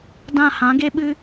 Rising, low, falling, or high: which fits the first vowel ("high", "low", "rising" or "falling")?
falling